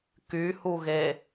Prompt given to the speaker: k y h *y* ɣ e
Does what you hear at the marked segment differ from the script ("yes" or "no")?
yes